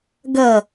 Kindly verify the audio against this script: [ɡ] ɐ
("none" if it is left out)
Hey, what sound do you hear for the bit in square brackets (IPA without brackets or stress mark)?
ɡ